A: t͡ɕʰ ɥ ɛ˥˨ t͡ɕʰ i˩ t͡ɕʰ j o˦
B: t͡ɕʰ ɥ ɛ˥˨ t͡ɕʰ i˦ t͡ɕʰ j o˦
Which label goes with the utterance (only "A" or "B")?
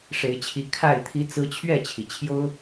A